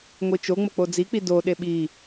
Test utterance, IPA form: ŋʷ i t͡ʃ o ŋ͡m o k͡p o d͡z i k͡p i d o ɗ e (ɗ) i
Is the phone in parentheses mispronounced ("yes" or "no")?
yes